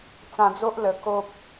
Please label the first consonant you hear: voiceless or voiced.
voiceless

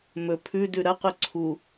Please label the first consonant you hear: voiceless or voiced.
voiced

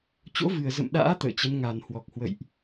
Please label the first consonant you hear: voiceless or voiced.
voiceless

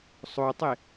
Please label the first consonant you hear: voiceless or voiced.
voiceless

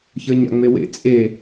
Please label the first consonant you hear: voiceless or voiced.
voiceless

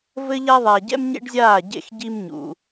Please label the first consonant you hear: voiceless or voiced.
voiced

